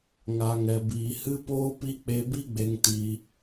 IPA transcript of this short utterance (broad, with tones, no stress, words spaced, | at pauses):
ŋa˨ŋɛ˨biː˨ hɨ˧poː˧pi˧ k͡pe˧bi˦ɡ͡be˧ŋ ti˧